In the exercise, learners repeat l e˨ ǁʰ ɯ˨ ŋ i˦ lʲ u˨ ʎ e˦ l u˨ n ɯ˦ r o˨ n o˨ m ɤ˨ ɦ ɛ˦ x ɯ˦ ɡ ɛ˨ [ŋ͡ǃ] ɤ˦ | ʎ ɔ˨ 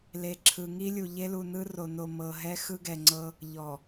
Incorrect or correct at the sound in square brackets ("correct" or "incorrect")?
incorrect